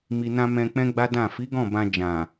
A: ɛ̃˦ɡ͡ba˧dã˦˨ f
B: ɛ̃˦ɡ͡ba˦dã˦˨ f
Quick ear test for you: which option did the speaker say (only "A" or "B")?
B